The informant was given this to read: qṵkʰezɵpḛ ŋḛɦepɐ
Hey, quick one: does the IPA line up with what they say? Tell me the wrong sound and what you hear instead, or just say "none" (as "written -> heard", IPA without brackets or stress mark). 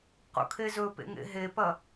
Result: none